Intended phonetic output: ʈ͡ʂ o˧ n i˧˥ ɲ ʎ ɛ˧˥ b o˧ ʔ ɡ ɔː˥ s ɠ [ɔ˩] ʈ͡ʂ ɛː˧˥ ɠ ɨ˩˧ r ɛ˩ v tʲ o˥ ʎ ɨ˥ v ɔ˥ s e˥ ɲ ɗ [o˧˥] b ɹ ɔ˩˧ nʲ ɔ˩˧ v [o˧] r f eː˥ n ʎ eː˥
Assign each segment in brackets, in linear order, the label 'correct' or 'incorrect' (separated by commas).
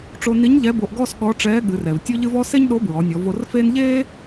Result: incorrect, correct, correct